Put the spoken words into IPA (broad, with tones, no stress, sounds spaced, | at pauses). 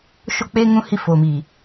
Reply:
ʃ o˦˨ k͡p eː˦ ŋ ũ˦ h i˦ f oː˨ m iː˨